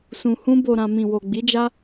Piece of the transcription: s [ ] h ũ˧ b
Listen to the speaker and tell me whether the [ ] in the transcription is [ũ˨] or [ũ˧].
ũ˨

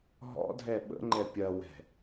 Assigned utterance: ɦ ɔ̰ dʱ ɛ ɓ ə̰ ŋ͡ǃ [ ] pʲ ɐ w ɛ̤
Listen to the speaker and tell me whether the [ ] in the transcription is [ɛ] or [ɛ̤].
ɛ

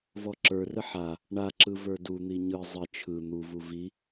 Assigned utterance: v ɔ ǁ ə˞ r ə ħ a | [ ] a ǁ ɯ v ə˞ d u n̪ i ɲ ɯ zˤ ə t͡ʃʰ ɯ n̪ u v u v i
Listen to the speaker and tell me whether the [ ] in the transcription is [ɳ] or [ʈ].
ɳ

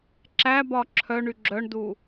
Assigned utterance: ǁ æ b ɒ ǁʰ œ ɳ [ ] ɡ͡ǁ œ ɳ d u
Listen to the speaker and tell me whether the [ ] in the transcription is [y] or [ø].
y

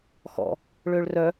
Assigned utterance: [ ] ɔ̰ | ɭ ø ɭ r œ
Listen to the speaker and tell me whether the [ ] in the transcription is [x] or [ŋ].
x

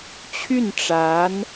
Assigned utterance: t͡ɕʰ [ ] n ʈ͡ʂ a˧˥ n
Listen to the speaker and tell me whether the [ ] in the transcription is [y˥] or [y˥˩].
y˥˩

